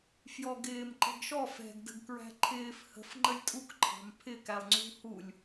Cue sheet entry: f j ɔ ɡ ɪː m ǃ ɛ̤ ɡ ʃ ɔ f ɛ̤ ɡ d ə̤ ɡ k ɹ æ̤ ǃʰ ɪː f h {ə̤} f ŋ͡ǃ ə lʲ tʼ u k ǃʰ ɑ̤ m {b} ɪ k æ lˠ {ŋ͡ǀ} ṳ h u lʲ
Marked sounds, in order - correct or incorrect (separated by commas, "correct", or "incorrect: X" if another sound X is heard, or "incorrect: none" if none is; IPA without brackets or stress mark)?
correct, incorrect: pʰ, correct